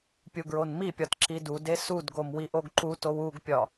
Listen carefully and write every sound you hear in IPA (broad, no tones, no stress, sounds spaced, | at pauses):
pʲ u ɡ ɹ o n m i pʲ ɒ t ǁ i d u d e s u d ɡ o m w i ʔ o ɡ ǃ u t o w u ɡ pʲ ɒ